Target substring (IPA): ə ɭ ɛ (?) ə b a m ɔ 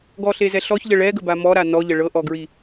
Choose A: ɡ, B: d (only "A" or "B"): A